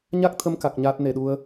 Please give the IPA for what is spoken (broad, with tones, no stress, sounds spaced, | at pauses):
ɲ a˦˥ k̚ t̪ʰ ə˧ m k a˨˩ k̚ ɲ aː˦˥ t̚ n e˧˩ ɗ u˧ ə̯